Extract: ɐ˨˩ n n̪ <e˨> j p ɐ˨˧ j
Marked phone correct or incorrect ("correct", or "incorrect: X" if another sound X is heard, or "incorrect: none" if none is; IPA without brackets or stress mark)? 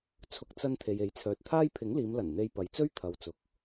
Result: correct